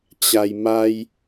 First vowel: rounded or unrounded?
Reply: unrounded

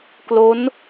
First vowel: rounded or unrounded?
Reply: rounded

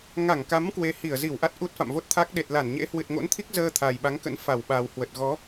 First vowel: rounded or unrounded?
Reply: unrounded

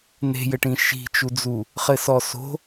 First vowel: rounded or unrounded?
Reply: unrounded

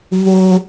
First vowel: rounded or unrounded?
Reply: rounded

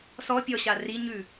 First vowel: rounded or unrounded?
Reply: rounded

